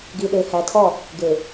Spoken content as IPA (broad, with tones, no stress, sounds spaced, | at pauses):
ɡ i˨ ɗ e˨ h æ˨ tʰ ɔ˦˨ | ɡ e˨